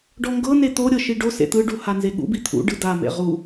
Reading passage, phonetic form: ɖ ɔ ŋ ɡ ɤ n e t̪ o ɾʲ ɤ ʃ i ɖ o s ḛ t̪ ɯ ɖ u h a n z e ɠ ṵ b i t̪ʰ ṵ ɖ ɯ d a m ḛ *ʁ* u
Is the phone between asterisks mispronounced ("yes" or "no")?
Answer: no